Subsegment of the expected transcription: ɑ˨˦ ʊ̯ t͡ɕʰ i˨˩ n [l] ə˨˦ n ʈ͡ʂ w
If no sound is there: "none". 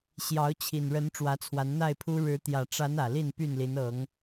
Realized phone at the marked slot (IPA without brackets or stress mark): ɻ